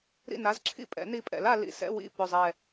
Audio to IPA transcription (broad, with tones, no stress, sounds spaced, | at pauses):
ɾ ḭ˥˨ n a˧˥˧ z ǁʰ ḭ˥˨ pʼ ɛ̰˩˥ n i˧˥ pʼ ɛ̰˩˥ l a˩˧ l ḭ˨˩ s ɛ̰˧˥˧ w ḭ˥˨ p ʏ˨˩ zˤ ɛ˨˩